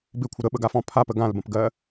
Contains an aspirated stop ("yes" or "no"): yes